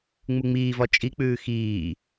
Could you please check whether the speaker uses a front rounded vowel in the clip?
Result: no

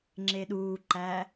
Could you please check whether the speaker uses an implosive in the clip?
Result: yes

